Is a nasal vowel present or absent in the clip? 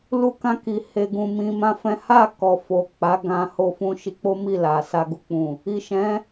present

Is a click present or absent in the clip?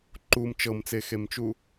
present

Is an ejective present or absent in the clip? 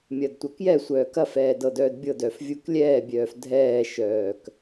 absent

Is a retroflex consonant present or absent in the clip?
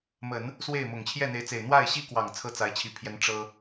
present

